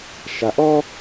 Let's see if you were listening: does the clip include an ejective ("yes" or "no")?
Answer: no